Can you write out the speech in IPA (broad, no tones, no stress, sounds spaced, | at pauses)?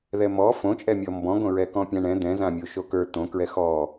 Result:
ð ɛ m ɔ f õ t͡ʃʼ ɛ mʲ ɔ m b ɔ̃ ɡ õ ɹ ɛ k ɔ̃ pʲ ã ɳ ɛ̃ d̪ ɛ̃ z ã mʲ o ʃ o k ə˞ t̪ õ k ɹ ɛ x ɔ